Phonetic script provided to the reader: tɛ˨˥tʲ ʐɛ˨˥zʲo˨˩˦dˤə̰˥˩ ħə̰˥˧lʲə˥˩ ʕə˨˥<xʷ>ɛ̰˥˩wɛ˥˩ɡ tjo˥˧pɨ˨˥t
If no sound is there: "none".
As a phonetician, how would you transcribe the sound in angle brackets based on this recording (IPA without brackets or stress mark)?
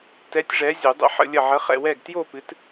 χ